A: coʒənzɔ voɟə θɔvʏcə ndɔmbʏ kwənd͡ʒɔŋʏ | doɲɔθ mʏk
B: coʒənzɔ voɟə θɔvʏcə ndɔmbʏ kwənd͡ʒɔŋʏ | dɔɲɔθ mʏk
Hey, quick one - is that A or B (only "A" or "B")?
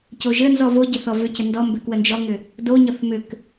A